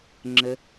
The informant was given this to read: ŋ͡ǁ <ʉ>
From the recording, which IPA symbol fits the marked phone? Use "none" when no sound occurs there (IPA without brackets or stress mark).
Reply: ə